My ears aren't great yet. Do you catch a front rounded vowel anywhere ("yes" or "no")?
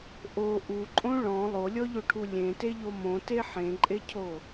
no